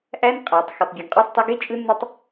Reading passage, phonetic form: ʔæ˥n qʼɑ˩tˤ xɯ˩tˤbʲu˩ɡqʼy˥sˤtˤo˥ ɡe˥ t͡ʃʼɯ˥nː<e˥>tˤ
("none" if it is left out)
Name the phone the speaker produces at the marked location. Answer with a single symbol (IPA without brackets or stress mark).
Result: e˥